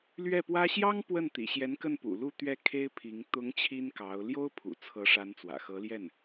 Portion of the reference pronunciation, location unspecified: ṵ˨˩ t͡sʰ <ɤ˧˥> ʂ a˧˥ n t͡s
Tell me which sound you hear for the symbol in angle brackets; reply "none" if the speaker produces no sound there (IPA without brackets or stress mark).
ɤ˧˥